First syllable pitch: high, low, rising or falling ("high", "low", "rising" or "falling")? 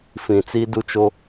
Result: low